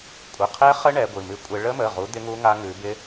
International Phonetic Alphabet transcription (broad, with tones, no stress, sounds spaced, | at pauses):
kʷʼ ə˩˧˩ qʰ ɛ˦˥ χ ə˦˥ ɳ ɛ˨˦ ɡʷ ɨ˩˧˩ m ɨ˦˥ kʷʼ ɪ˦˥ ɭ ə˦˥ m ə˩˧˩ ʁ u˨˦ d̪ ɪ˦˥ ŋ u˦˥ ŋ a˦˥ ŋ ʉ˨˦ b ɪ˦˥